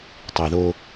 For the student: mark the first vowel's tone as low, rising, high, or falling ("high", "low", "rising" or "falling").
low